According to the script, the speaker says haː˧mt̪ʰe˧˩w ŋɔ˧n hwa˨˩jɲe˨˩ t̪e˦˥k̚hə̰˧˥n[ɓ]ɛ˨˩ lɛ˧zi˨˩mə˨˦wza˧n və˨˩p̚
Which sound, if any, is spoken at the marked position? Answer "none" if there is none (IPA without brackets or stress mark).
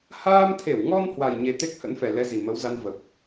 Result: f